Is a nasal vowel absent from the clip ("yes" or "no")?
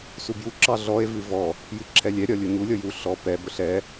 yes